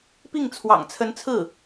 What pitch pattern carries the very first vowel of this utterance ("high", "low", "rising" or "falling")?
falling